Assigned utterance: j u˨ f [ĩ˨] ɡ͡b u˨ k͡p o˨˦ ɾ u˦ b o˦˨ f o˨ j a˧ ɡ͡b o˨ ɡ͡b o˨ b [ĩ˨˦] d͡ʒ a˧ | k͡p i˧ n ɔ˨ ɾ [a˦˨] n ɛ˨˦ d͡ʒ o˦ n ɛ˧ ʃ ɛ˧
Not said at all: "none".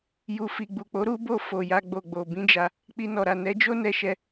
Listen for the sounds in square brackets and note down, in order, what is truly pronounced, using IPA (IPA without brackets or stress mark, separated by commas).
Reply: i˨, ĩ˨˦, a˨